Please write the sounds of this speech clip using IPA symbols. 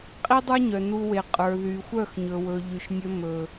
qʼ i˦ dˤ ə˞˦ ɲ œ˨ n u˧ w e˨ qʼ ə˞˨ ð y˨ xʷ œ˦˨ x ɲ ɵ˨ w ɵ˨ ʎ y˨ ʃ nʲ ɵ˧ m ɵ˨

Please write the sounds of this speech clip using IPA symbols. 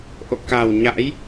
ʔ o̰˧˨ k a˨˩ w ɲ a̰˧˥ j

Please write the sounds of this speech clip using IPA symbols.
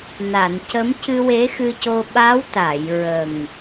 n a˨˩˨ n c ə˧˥ m c ɨ˧ w e˧˥ x ɨ˧ c o˧ ɓ a˧˥ w t̪ a˨˩˨ j ɹ ə˨˩ ŋ

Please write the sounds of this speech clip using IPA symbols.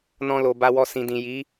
n ɔ̃˧ l o˨ b a˧ w ɔ˧ s ĩ˨ d ĩ˨ j i˨˦

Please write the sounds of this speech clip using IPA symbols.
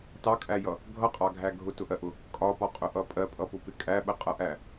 t ɑ kʼ æ j ʌ | ɡʱ ʌ qʼ ɑ ɡʱ æ ɡʱ ʊ t ʊ ʔ ɜ ʔ ʊ | kʼ ɒ p ɒ qʼ ʊ ʔ ʌ pʼ ɜ pʼ ʌ p ʊ p ɪ kʼ æ ɓ ə qʼ ʌ ʔ æ

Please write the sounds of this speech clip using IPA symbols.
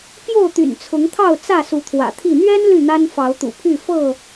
p j o˥˨ ʊ̯ t̪ y̰˨˩ n t͡sʰ ʊ˨˦ ŋ t̪ʰ ɑ˥˨ ʊ̯ t͡s ä˥˨ s u˨˦ t̪ʰ w ä̰˨˩ t̪ʰ i˥˨ n̪ ɥ ɛ˦ n l y˥˨ n̪ a˦ n f ɑ˨˦ ʊ̯ t̪ ṵ˨˩ pʰ y˥˨ f ɤ˥˨

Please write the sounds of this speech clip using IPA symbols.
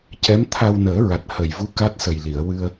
c ɛ˧˥ m t̪ʰ a˧ w n əː˨˩˦ ɹ a˨˩ t̚ h ə˨˩ j v u˧˥ k a˦˥ t̚ s ə˨˩ j l i˨˩˨ ə̯ w ɨ˧ ə̯

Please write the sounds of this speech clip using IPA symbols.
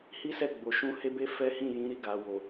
h i˦ s ɛ˦˨ ɡ͡b o˨ ʃ ũ˧ h e˦ b e˦ f ɛ˦ h ĩ˦˨ j ĩ˨˦ ɾ i˦˨ ɡ a˨ w o˨

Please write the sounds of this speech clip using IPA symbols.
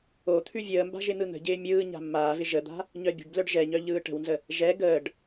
o t̪ʰ ʉ vʲ əː m b a̤ ʒ ɪ n̪ ɯ n̪ ə̤ ɟ ɪː mʲ ɯː ɲ a̤ mː aː v ɪ ʒ ə d̪ a̤ | ɲ œ bʲ ə̤ ɖ b l œ ɖ ʒ ɛ ɲ œ ʎ ɯː ʈ ə̤ w n z ə | ʒ ɛ ɡ əː ɖ

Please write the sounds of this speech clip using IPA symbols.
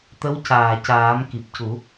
t̪ ə˧˥ w c aː˨˩ c aː˨˩˦ m k i˨˩ p̚ c u˨˩˦

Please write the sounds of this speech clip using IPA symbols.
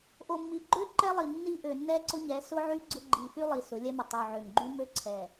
ʔ o˨ mː i˨ ɡ͡ǃ ø˦ ǃ ɛ˦ lˠ i˨ nː i˦ ʔ ø˨ nː ɛ˦ ǀ ʊ˦ ɲ ɛ˨˦ s ʊ˦ ʕ y˦ ɡ͡ǀ ʊ˦ ɡ͡ǃ i˨ f y˦ lˠ i˨ s ʊ˨˦ lʲ ɛ˦ m ʊ˨ tˤ y˨ ʕ ø˨ ŋ ɡ͡ǃ y˦ m ø˦ ǀʰ ɛ˨

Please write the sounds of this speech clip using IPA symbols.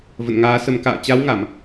v ə̰˧˨ n ŋ aː˨˦ s ə˨˩ m k a̰ː˧˨ t͡ɕ a˨˦ w ŋ a˧˩˨ m

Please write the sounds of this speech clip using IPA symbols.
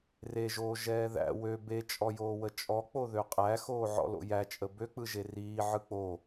r e ʒ oː ʒ ɛː ð æ̰ w ø b e t͡ʃʼ ɔ j oː w ə t͡ʃʼ ɔ k͡p o ð ø qʼ æ x oː ʕ ɔ̰ l o̰ j æ t͡ʃʼ ə b ø k͡p ɯ ʒ e r iː ʕ ɯ k͡p o

